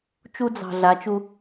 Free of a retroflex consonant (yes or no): yes